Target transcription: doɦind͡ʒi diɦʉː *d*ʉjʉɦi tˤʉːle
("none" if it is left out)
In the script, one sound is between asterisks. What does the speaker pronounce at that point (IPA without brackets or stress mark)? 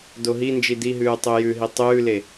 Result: tˤ